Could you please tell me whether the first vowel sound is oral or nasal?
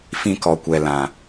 nasal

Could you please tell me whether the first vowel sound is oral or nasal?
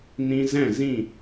nasal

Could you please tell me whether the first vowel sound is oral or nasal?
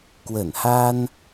oral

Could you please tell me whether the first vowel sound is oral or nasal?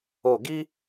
oral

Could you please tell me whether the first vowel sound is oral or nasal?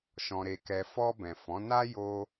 nasal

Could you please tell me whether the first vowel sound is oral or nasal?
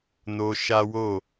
oral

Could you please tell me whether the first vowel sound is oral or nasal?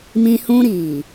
nasal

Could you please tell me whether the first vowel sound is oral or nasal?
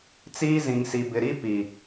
oral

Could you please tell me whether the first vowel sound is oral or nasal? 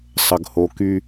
oral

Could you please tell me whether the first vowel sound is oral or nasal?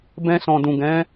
nasal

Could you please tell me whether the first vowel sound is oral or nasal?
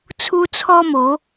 oral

